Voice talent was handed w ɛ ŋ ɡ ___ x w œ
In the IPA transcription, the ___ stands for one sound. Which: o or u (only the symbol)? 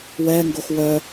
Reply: o